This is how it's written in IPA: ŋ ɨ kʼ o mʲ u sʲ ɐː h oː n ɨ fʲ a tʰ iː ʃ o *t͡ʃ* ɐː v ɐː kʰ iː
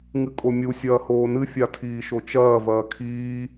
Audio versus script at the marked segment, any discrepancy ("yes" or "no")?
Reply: no